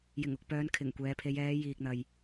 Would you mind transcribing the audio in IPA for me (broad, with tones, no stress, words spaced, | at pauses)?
jɪ˨˩ŋʊ˨k̚pœː˨˧n kʰɪ˨˩ŋkʷɛː˨˧pʰe˨˧j ɛː˨˧ jiː˨k̚n̪ɐ˨j